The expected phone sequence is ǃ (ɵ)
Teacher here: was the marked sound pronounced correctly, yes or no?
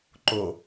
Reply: no